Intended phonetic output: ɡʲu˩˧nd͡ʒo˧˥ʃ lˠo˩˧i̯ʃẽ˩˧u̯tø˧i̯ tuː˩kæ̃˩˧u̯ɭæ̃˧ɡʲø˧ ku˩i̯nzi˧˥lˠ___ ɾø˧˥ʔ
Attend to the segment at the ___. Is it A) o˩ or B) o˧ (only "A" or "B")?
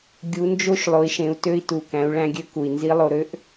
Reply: B